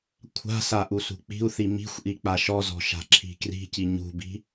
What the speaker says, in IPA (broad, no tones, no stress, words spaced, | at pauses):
kʷʰa̤sa ʔusṳk͡pi̤u̯θi mi̤xʷʔi k͡paʃɔzɔ̤ ʃa̤ǁʰi̤kri̤ci ɲṳbi̤